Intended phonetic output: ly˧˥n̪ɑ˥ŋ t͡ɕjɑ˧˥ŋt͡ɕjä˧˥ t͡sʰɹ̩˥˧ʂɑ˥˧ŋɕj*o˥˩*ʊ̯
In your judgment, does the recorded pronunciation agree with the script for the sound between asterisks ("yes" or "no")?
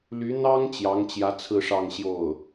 yes